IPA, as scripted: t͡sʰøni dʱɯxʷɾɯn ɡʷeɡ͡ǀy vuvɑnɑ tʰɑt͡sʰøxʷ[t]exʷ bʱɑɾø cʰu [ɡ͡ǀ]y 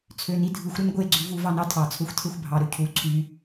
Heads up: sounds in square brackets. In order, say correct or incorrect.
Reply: incorrect: tʰ, incorrect: ǀʰ

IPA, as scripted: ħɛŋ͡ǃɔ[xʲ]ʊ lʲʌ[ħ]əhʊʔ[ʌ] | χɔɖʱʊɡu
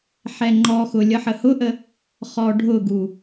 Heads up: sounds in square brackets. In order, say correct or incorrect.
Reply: incorrect: x, correct, incorrect: ə

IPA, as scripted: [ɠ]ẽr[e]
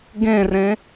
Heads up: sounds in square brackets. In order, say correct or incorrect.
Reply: incorrect: ɡ, incorrect: ẽ

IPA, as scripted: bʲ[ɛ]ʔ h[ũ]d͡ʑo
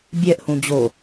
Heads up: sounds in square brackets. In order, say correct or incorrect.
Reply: correct, correct

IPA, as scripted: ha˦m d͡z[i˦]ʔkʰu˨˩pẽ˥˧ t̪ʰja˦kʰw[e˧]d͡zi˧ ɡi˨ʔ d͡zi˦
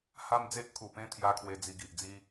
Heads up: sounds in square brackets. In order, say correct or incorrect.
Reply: incorrect: e˦, correct

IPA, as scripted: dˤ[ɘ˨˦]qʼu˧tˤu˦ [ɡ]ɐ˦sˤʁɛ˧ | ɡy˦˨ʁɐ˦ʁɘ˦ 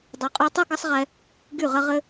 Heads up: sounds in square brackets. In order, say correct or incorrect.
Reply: correct, correct

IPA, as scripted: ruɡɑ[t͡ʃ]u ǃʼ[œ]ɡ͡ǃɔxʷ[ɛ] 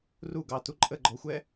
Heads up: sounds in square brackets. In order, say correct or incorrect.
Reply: incorrect: t, incorrect: ə, correct

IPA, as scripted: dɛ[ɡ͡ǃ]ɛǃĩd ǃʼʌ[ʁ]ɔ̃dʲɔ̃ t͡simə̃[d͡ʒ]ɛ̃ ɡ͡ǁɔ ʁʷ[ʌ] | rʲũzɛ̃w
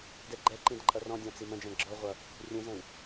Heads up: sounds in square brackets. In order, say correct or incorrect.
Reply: correct, incorrect: r, correct, correct

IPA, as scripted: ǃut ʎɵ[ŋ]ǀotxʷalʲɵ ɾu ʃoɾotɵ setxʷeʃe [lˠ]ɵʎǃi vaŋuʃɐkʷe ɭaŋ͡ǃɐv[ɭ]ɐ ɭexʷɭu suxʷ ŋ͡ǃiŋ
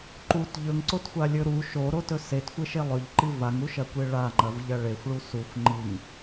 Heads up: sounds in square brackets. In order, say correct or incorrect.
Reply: correct, correct, incorrect: ʎ

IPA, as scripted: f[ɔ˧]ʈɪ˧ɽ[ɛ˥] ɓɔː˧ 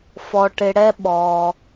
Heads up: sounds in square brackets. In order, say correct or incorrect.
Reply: correct, correct

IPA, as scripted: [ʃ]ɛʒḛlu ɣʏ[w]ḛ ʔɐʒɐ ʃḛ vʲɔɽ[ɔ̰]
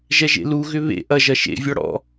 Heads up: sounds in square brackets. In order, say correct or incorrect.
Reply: incorrect: ʒ, incorrect: β, correct

